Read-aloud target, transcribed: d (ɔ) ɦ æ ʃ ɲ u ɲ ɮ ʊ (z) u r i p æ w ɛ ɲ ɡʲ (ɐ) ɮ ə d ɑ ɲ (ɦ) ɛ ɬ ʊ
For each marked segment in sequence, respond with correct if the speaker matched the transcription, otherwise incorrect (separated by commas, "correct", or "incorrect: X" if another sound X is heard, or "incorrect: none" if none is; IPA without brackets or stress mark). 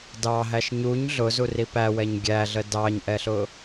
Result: incorrect: ɑ, correct, incorrect: æ, incorrect: ʔ